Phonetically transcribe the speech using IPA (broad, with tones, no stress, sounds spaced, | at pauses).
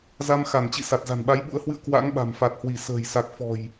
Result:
z a˧ m x a˧˩ n t͡ɕ ḭ˧˨ s a˨˩ t̚ z a̤˨˩ n ɓ a˨˦ j ɓ ṵ˧˥ ə̯ h w ɨ̰˧˨ ə̯ k w a̰˧˥ ŋ ɓ a̤˨˩ m f a˨˩ t̚ h w i˧˩ s ə̤ː˨˩ j s a˨˩ k̚ f ɔ̤˨˩ j